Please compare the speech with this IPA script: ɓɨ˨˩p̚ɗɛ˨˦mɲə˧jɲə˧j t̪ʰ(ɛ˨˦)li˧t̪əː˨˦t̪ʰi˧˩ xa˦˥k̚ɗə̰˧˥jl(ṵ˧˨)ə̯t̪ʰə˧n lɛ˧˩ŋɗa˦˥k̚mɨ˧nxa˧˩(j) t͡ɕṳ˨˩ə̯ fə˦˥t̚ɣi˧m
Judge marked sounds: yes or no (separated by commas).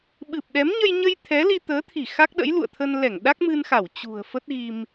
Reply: yes, yes, no